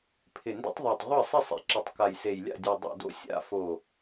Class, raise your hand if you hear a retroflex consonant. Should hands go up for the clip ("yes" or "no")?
no